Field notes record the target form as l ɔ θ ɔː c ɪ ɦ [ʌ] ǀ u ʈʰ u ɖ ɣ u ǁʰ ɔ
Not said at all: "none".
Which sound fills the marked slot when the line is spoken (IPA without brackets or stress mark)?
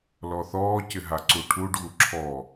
a